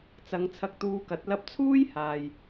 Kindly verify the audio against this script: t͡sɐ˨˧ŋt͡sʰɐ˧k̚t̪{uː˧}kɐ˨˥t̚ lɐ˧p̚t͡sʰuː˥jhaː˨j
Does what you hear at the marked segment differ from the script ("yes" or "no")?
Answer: no